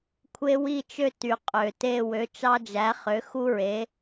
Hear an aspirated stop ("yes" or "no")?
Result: yes